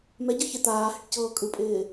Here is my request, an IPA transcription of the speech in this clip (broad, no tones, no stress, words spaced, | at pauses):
mɛɟɯ çɪ t̪aː hɪʈcɤːkʼɯpʼɪː